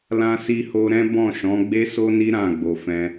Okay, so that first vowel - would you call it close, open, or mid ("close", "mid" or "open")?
open